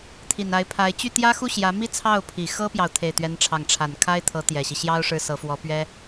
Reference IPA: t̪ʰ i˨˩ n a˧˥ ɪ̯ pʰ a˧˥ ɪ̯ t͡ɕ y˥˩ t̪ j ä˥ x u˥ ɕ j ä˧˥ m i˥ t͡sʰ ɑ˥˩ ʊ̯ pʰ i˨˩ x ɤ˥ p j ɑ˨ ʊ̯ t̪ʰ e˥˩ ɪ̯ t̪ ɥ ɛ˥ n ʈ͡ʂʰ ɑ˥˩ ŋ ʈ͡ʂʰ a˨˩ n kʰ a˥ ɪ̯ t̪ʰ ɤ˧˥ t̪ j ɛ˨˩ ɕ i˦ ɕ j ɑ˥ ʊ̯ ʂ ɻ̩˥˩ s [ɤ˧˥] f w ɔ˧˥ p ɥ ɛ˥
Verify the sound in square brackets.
correct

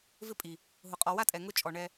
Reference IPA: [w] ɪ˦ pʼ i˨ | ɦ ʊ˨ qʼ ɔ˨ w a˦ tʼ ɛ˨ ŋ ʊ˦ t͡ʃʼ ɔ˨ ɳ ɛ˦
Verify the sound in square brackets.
incorrect: v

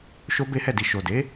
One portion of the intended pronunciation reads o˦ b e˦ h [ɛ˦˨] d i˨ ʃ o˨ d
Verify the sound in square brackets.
correct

